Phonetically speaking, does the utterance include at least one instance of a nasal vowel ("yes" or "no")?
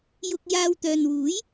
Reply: no